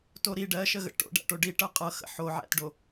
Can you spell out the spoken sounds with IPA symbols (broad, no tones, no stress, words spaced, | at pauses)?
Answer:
toɾi ɖɜʃəɣə̰ ʈo̰ɖæ̰ʈo ɖiʈɤ qʼɤxə̰ ħoʕæ̰tɖo